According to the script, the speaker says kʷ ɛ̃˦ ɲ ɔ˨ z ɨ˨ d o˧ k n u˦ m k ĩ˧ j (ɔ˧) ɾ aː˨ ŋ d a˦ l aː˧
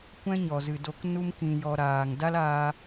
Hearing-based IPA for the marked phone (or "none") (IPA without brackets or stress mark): ɔ˧